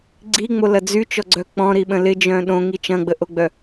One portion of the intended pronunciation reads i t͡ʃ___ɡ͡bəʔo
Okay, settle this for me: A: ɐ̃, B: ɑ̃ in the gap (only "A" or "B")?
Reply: A